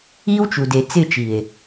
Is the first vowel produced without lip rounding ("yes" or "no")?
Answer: yes